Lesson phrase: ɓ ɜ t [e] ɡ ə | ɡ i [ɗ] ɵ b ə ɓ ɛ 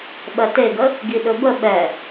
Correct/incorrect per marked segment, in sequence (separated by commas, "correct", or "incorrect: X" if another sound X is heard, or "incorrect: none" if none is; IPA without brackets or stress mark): correct, correct